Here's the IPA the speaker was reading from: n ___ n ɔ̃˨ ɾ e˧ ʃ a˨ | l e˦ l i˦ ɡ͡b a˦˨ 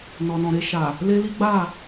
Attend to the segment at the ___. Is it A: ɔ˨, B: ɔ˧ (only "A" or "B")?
A